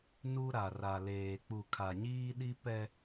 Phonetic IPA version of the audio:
n u˦ ɾ a˨ r a˨ l eː˨ k͡p u˨ kʰ a˨ ɲ iː˦ ɗ i˦ p ɛ˦

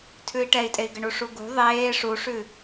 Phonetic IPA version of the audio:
tʰ ʉ i̯ ʈ ɛ i̯ tʼ e i̯ ɡ ɘ ɳ u ʂ u ɡ ṳ ðˤ eː ʂ u ʂ ʉ

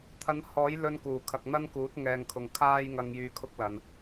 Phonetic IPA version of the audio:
t̪ʰ ɐ˧ n h ɔː˨˥ j l ɵ˧ n k uː˨˩ kʰ ɐ˨ k̚ n̪ ɐ˥ n k uː˨˥ t̚ ŋ ɛː˨ ŋ kʰ ʊ˨ ŋ kʰ aː˥ j ŋ ɐ˧ ŋ j yː˧ kʰ ʊ˥ k̚ l ɐ˨ n

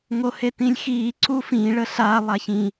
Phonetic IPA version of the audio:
ŋ o h e t ĩ lʲ x iː ǀ u f ĩ ɭ ə ɬ a lˠ a ç ĩ

